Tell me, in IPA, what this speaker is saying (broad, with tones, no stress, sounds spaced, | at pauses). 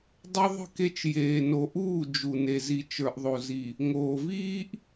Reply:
dˤ o˦ ðˤ ə̤˦˨ k e˦ t͡ʃ j eː˨ n o˨ ʔ uː˦˨ d͡ʒ u˨ n e˨ z i˨ t͡ʃ ə˞˨ ʔ ðˤ o˨ z i˨ | ŋ oː˨ v iː˦ ʔ